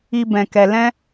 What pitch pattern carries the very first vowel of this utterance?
low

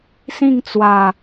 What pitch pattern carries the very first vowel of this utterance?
falling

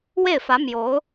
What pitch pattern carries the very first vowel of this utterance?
falling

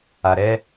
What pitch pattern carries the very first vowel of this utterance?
low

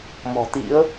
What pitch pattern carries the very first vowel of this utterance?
low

